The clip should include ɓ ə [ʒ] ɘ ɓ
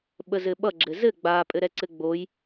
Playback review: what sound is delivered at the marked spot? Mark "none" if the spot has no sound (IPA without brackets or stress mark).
z